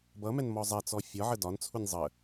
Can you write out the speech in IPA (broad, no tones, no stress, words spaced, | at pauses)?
bʌmɛn mɔzˤɛt͡sɔ fʲɒʕə dɒnt͡sʰunʲ zˤə